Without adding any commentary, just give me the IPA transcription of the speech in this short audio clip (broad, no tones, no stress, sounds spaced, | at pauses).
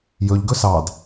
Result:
j ɵ ʎ ɡ ɵ s ɑ d